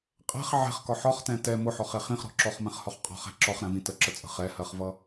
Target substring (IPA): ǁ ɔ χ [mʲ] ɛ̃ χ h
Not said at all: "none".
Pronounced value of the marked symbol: m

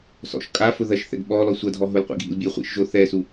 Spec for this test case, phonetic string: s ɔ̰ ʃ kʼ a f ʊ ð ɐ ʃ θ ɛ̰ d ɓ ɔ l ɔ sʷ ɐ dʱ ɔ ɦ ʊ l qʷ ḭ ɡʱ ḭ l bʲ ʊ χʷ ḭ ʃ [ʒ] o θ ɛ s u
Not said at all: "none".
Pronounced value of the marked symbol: ʒ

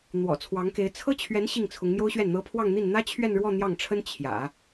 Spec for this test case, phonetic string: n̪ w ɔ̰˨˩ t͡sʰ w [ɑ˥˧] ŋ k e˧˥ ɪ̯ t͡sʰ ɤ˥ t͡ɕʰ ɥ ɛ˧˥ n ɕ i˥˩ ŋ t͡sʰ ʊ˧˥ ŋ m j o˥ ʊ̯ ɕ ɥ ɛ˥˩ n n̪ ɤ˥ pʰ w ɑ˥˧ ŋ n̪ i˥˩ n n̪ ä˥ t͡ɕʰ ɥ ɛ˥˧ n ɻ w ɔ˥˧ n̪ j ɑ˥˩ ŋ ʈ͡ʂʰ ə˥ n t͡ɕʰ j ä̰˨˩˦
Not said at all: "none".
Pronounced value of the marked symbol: ɑ˧˥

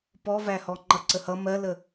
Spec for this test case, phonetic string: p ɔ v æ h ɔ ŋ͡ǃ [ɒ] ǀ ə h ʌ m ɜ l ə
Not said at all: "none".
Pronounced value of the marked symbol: ʌ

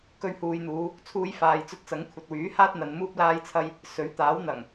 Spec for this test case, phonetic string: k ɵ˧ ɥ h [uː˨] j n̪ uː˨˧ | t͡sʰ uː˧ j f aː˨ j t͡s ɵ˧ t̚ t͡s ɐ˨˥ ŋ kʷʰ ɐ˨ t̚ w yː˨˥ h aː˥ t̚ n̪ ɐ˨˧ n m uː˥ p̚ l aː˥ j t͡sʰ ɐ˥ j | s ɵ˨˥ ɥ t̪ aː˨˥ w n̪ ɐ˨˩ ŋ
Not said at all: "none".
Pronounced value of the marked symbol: uː˨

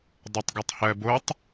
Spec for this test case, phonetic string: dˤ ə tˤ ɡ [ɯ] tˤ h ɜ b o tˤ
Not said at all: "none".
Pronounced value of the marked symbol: ɤ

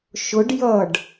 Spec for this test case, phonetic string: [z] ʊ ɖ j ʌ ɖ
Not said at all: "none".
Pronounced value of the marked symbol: ʃ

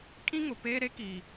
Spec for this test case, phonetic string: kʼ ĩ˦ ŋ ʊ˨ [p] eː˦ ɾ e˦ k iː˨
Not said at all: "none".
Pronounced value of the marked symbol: p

